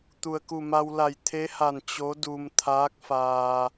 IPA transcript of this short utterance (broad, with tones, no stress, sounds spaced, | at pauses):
t̪ u˩ ə̯ k u˧˩ m a˧ w l a˧˩ j t̪ʰ e˧˥ h a˧˩ n t͡ɕ o˧˥ d u˧ m t̪ʰ aː˧˥ k̚ f aː˧